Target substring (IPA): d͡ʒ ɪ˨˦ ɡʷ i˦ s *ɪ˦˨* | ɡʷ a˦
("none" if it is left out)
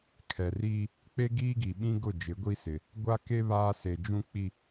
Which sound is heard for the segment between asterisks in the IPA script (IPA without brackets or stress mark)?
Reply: ɪ˨